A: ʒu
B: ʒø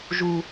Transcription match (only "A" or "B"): A